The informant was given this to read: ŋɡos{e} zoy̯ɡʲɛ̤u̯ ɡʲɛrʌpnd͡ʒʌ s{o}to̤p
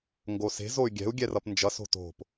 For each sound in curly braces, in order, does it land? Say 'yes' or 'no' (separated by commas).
no, no